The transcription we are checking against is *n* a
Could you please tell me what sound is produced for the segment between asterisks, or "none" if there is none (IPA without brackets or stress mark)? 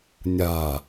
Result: nʲ